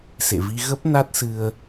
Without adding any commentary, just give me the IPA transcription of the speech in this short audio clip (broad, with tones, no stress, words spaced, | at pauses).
sḛ˧˨vi˧ ɣə˦˥p̚ na˦˥t̚sɨ˧ə̯